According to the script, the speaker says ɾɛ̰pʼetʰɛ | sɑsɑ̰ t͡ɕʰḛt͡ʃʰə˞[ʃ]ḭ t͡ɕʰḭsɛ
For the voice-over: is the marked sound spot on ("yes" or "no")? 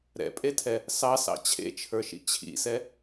yes